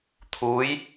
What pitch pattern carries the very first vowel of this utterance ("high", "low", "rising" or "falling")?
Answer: rising